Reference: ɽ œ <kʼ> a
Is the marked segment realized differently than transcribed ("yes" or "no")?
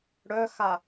yes